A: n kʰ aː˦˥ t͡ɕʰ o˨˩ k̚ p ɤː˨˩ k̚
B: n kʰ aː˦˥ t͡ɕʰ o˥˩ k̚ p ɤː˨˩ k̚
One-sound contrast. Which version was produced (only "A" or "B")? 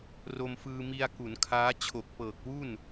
A